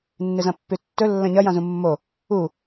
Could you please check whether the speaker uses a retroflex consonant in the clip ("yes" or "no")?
no